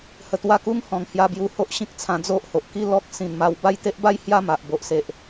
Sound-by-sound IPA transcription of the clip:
hə˧t̪wa˥˧ ku˦ŋhɔ̃˨˩ŋ hja˧bju˧ ho˦ʔɕĩ˦k̚t͡sʰã˧ d͡zo˦ʔho˨ʔki˦lɔ˦k̚ sĩ˨˩nma˧w ba˥˧jt̪e˦ʔba˦j hja˥˧ma˨ʔbo˨ʔ se˨ʔ

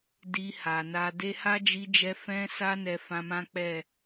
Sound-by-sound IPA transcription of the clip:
di˧ha˨na˧ de˧ ha˦d͡ʒi˧d͡ʒɛ˧ fɛ̃˧sa˧ nɛ˧fã˧mã˦ k͡pɛ˦˨

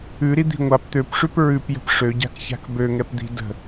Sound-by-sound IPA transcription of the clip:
ʉɾid̪i̤ ŋʷap t̪øpʂʉp ɹʉpjə̤p ʂøɟa̤kça̤k bøŋɛpd̪i̤ də̤

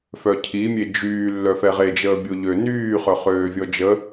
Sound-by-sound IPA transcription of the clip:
fœcʰimʲe d͡ʒyː lːœfɛʁe d͡ʒəːbʲoʎø nyːχœ χøːvʲɔd͡ʒə

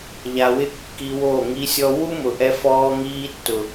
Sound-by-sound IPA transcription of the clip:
ʎa˨wɪ˧ kːi˧wo˦˨ŋi˦sʲɔ˦ wu˦mʊ˨ʔɛ˧fɔː˧ ŋiː˧tːʊ˨

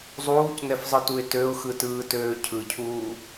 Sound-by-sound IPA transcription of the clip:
zˤuːcnɛfzˤɯtuɪ̯ tøʊ̯xɯtɯːtøː cʰɯcʰuː

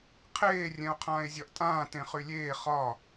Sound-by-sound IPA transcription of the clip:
qʰeː rʲɛ̃o̯qʰãːe̯zʲɒʔtʼãː tẽχylʲeː χɒ

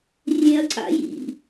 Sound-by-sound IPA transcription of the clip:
rʲẽɐ̯ǀa̰ jḭ

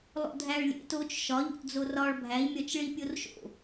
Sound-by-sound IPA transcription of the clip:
lˠo̰dʱæɭlʲḛt ot͡ʃ ʃɒʎo̰td͡zo rɒɭ bʱæi̯mʲɒt͡ʃɭi pʲorʃo̰

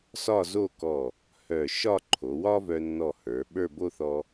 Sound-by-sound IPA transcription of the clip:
sɒ˥˧zo˥˧kɔ˧˩ | hœ˧˩ ʃɒ˥˧ǃʰo˩˧wɒ˥vœ˧ nːɔ˧˩ hə˞˩˧ɓə˞˥˧ bo˥˧θɔ˧

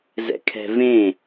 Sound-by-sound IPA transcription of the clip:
zɛ̰kʰɛ̤vẽ

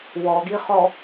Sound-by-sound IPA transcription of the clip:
wɔɡiχɔ

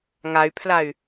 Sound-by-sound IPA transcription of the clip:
ŋay̯pʰlay̯

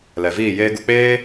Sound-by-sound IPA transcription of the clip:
lɛ˨viː˦˨jeː˦ɡu˧ k͡peː˦

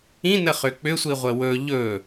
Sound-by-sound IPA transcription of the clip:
ĩnəχʏ k͡pʏsʷiʁʷə wɵ ʎɵ

